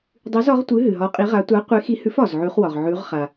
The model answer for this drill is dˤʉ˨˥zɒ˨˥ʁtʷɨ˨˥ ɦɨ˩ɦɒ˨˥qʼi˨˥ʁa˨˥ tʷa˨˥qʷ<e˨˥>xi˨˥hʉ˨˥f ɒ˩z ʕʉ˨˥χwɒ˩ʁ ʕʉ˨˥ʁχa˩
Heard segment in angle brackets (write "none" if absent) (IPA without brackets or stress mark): e˨˥